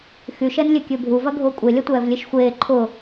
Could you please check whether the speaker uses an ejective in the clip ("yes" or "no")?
yes